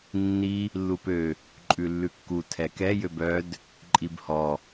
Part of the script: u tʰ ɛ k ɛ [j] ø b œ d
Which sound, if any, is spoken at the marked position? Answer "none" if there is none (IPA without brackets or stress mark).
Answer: j